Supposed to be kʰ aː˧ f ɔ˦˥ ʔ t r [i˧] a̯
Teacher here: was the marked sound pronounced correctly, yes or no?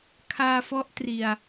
yes